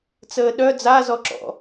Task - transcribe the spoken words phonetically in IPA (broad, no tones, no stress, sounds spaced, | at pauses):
t͡s əː ɗ œ d͡z a z ɔ ǁ ɔ̰